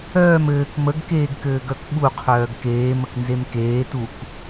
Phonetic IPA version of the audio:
œː m ɘː k m ə ɡ k eː ɡ k ɘː ɡ œ k ɓ u qʰ œː ɡ k eː m ə k n z e m k eː t u k

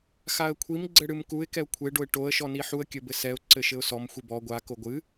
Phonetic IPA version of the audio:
x a ə̯ kʷʰ i m ɡ͡ǀ ɘ ɽ ɨ m k u ɪ̯ k ɛ ʊ̯ kʷʰ e ɖ o ɪ̯ ʈ o ə̯ ʃ ɔ n i ħ u ə̯ kʲ ɘ b ɘ s ɛ ʊ̯ ǀ ɘ ʃ ɘ ʊ̯ s ɔ m xʷ i b ɔ ɡʷ a k o ɡʷ ɨ

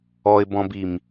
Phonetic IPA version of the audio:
ɔ ɪ̯ b ɔ̃ b i m

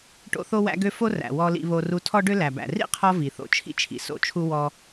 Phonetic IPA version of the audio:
ʈ o̰˦ θ o˦ w æ̰˦ ɡ ø˦ f o˦ r æ̰˨ w ɔ˧ l ḭ˧ β o˧ r u˧ tʰ ɔ˦ ɖ ø˦ l æ˨ b æ̰˨ r ḭ˦ qʰ ɔ˧ v i˨ θ o̰˧ t͡ʃʰ ḭ˦ t͡ʃʰ ḭ˨ s o̰˦ t͡ʃʰ u˦ w ɔ˦

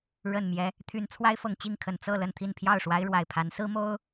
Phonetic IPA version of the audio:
ɻ ə˨˩ n m j ɛ˦ | t̪ʰ y˨˦ n t͡sʰ w a˦ ɪ̯ f ɤ˨˩ ŋ t͡ɕ i˥˨ ŋ kʰ ə˨˩ n t͡s ɤ˥˨ l ə˥˨ n t̪ʰ i˥˨ n pʰ j ɑ˥˨ ʊ̯ ʂ w a˦ ɪ̯ ɻ w a˨˩ ɪ̯ pʰ a˨˦ n s ɹ̩˦ m o˦ ʊ̯

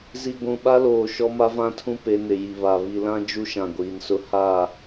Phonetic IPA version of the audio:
z i˨ ɡʷ ũ˨ ɓ a˦ l oː˨ ʃ ɔ˦ m a˦ v ã˦ tʰ ũ˦ p e˨˦ n ɪ˨ j i˨ β a˨ β i˨ l ã˦ d͡ʒ u˦ ʃ ã˨ ɡʷ iː˨ n s ʊ˦ h aː˦˨

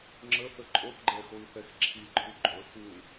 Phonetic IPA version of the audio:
ŋ͡ǁ ə θ ə ǃʼ o θ ɡ͡ǃ ɛ x o i̯ θ ɛ x ǁʰ i ǃʰ u ɡ͡ǃ ɵ x u

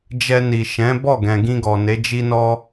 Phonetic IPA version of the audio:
d͡ʒ ɛ˧ n i˨ ʃ ɛ̃˨˦ b ɔ˦˨ ɡ ɛ̃˨ ɡ ĩ˧ ɡ ɔ˨ n e˨˦ d͡ʒ i˦ n ɔ˦

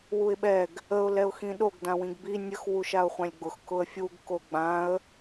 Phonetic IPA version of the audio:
w u ɪ̯ ɓ ɛ ɡ | ə ʊ̯ l ɛ ʊ̯ x ĩ ɗ o ɡ d ã w ĩ ɡ b i nʲ ə x w u ʃ a ʊ̯ χʷ ã lʲ ɡ͡b ʊ x k ʊ ə̯ fʲ u ɡ k o ɡ͡b ã ə̯

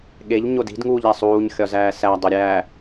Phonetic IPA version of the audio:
ɠ e ʎ ɲ o d i̤ d ŋ uː ʎ æ sˤ uː ɲ xʲ ɒ z æː s æ dˤ o ɾʲ æː

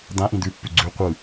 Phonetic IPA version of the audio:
d̪ ã ʔ ĩ d̪ ʉ pː ʉ ɡ͡ǀ ʉ qʷ ɯ

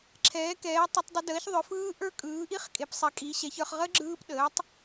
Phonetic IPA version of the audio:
ǁʰ ɛː˨˥ k ɛː˨˥ tˤ ə˦˥ tˤ dˤ ʏ˦˥ d əː˨˥ ç ðˤ ʏ˨˥ f ɯː˦˥ ʔ ə˞˦˥ kʼ ɯː˨˥ ʔ i˦˥ χ kʼ e˨˥ p sˤ ɛ˨˥ kʼ i˨˥ ɕ ɛ˨˥ ç ə˞˨˥ χ ʁ ə˦˥ ɡ͡ǁ ɯː˦˥ p ɗ əː˨˥ tˤ

